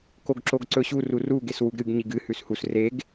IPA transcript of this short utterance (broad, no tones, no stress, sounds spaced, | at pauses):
k o ɡ ǁ o ɡ ǀ ɵ ɕ u r u r u ɡ e s w u ɡ ɾ ɨ ɡ ɲ i ɡ ɨ h ʉ s h u s r e ɡ